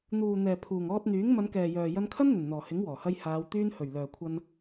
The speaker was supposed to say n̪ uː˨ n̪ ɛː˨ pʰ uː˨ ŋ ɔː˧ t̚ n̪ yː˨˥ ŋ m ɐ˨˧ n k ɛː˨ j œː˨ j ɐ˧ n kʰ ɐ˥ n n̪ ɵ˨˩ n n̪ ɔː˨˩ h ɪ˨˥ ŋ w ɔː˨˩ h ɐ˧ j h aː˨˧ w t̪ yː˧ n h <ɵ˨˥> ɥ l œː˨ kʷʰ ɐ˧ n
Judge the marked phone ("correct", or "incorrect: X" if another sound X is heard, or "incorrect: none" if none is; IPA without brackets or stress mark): incorrect: ɵ˨˩